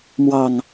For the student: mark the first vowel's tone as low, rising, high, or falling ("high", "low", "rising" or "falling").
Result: falling